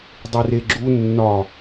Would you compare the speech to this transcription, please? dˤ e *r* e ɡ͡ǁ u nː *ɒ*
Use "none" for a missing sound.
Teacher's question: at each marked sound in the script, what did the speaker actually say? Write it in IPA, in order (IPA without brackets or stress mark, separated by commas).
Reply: r, ɒ